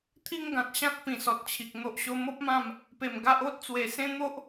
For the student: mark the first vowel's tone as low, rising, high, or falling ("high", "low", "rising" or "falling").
high